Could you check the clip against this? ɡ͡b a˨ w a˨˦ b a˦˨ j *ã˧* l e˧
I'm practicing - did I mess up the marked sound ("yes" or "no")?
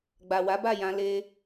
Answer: no